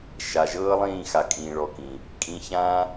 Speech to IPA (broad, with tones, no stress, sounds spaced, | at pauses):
ʃ a˨ ʒ ɤː˦ lˠ ĩː˦˨ x a˨ kʼ ĩː˨ ɭ ɔ˨ k ĩ˨ | kʼ ĩ˧ ç ã˦